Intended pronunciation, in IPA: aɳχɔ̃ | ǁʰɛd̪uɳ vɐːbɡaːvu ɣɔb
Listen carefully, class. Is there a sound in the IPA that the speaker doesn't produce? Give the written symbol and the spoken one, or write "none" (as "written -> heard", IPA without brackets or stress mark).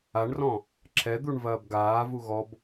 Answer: χ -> r